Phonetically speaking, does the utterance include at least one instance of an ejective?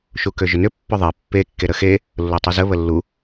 no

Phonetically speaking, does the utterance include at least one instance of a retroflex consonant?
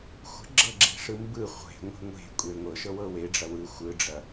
yes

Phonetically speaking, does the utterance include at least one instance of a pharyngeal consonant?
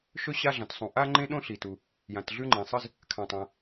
no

